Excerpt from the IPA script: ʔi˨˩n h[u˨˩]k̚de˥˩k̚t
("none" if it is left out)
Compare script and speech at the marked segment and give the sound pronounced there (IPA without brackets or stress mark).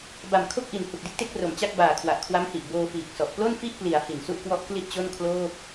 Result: u˨˩